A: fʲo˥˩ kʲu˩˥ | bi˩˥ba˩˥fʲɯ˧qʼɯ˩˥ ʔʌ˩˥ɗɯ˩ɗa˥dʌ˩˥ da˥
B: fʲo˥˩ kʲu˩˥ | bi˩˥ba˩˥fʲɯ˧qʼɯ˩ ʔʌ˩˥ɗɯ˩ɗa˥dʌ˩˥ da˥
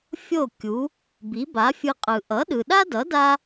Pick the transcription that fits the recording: B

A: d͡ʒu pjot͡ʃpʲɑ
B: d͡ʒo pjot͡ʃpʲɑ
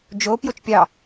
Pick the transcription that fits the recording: B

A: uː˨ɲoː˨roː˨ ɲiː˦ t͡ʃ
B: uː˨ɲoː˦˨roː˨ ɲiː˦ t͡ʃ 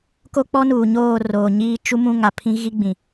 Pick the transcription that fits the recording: B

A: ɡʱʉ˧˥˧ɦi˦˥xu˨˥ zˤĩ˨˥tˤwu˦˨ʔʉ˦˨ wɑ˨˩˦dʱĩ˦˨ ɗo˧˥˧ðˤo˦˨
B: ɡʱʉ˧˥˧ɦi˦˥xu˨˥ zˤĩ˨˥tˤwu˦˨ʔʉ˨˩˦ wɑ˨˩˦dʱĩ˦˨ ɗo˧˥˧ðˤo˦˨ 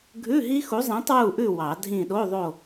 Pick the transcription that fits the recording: A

